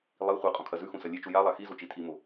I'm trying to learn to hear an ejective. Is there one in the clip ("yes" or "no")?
yes